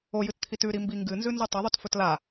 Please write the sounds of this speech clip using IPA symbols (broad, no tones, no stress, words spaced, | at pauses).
ojɨtt̪ʰit ʉɾimbi ŋɡɨnzʉnzu tˤɐðˤutfɵt la